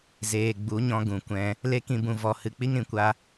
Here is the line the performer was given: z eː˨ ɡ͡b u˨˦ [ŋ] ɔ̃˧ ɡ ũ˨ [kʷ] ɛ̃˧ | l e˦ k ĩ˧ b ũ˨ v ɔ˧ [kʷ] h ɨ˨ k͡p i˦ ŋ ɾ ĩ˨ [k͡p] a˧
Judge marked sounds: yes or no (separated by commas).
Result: no, yes, no, no